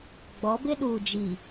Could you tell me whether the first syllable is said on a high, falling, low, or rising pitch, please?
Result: rising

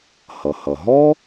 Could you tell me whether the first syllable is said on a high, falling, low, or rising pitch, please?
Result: low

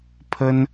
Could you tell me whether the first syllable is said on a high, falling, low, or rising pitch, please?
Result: high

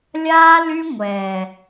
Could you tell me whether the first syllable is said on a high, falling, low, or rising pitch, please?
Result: high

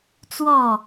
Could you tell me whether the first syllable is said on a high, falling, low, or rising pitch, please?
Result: falling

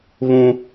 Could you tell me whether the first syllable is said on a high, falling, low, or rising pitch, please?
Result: low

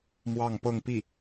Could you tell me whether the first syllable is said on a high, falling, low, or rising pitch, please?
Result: falling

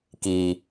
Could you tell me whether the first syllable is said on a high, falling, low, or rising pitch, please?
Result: low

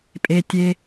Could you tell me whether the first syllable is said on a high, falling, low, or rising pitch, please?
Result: low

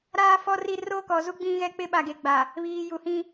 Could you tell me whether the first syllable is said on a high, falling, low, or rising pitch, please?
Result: high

